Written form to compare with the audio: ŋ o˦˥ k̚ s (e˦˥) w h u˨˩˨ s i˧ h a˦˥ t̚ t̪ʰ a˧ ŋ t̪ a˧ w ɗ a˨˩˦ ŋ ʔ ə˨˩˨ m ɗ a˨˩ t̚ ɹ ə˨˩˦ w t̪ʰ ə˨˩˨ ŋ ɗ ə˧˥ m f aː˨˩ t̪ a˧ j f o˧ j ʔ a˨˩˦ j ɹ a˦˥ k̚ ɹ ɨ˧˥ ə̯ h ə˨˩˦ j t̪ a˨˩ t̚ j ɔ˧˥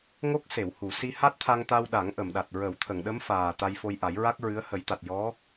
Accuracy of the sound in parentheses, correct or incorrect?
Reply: incorrect